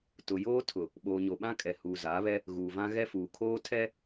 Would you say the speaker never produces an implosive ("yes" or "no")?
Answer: no